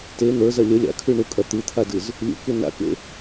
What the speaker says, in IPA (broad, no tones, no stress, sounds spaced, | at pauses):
t e n̪ ə˞ z ɐ lʲ ə lʲ a̰ kʰ ʉ ɳ u kʼ ɐ t̪ ɨ t̪ʰ a d ɨ z | lʲ ṵ k ʉ n a̰ k ḛ